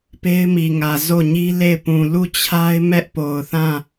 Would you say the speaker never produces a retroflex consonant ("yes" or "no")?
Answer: yes